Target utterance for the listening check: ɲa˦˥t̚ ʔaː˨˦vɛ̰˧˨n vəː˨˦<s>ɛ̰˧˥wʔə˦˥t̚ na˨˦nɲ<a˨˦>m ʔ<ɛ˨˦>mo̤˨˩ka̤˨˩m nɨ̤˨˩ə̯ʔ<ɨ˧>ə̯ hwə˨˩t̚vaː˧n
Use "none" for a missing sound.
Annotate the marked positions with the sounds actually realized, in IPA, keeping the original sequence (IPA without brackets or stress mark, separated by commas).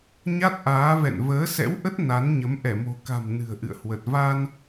s, ə˨˦, ɛ˧˩, ɨ̰˧˨